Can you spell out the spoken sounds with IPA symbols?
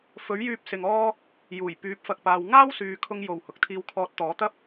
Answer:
f ɵ˨˥ ɥ j yː˧ p̚ s ɪ˨ ŋ ɔː˥ | j uː˨˩ j p yː˨˥ p̚ f ɐ˨ k̚ p aː˨ w ŋ aː˥ w s yː˨ kʰ ʊ˧ ŋ j o˨˩ w h ʊ˨ k̚ t̪ʰ iː˧ w kʰ ɔː˧ t̚ t̪ ɔː˨˥ t̪ ɐ˥ p̚

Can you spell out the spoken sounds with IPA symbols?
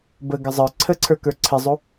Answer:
b ə ɡ ə zˤ ə˞ ǀʰ ə ǀʰ ə˞ k ə˞ ǀʰ ɪ zˤ u

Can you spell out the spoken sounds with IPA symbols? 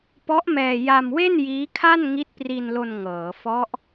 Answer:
p ɔ˦˥ ʔ m ɛː˧ j a˧ m w e˥˩ n j iː˦˥ kʰ a˥˩ n ŋ i˦˥ t̚ p r i˧ n l o˧ n ŋ ɤː˩˦ f ɔ˦˥ ʔ

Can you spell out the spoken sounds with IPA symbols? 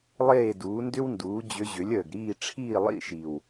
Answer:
lˠ eː˥˨ d uː˩˥ n d ʏ˥ w n d uː˩˥ d͡ʑ ʏ˧˥ ʑ ʏ˩˥ lʲ əː˨˩ ɡ ɾ iː˥˨ ʈ͡ʂʰ iː˥˨ lˠ ḭ˥˨ ʃ i˨˩ w

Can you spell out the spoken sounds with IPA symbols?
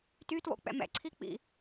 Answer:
t y t w o̰ k͡p ɛ̰ m ɛ̰ ǀʰ i k͡p ḭ

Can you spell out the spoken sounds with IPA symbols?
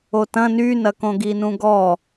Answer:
o t ɐ̃ n y n ɐ k õ ɡ i n ũ ɡ ɔ

